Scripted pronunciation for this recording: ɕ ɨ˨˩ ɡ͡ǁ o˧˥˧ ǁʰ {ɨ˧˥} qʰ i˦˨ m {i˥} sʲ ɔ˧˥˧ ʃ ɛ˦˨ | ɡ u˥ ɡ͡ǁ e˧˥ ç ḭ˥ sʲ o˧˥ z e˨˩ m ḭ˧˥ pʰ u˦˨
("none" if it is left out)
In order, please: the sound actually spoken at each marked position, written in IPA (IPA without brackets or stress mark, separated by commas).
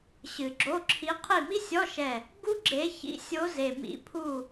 i˧˥, i˥